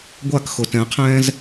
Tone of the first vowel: falling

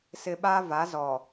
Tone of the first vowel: low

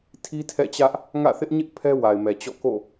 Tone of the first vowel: high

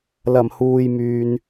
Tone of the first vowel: low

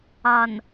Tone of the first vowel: low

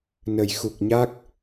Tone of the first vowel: low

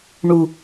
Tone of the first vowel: low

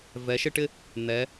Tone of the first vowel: rising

